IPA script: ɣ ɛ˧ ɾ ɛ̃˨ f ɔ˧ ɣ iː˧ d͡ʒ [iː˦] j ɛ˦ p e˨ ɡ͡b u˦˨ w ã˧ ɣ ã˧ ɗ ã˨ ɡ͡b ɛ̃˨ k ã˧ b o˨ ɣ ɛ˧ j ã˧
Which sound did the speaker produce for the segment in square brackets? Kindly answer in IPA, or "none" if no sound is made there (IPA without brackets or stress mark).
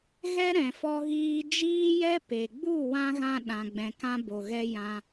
iː˦